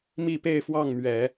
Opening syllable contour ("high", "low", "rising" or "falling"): falling